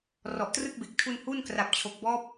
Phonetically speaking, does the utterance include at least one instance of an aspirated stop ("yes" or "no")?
yes